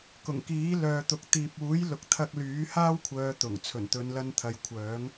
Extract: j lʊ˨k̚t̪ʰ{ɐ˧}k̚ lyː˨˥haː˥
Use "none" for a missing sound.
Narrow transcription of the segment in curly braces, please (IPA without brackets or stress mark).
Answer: ɐ˧